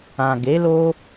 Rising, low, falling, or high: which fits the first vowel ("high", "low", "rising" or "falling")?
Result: low